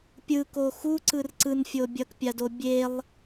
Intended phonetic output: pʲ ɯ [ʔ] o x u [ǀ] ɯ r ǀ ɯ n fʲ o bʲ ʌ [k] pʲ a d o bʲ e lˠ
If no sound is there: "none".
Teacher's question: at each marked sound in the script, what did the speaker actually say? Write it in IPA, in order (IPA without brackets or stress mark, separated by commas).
k, ǀ, k